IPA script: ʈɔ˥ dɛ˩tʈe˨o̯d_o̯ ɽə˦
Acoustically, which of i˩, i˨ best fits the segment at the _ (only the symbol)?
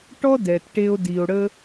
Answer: i˩